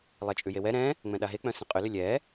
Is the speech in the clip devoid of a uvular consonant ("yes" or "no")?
no